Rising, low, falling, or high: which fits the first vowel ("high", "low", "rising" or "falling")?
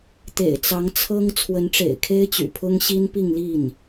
low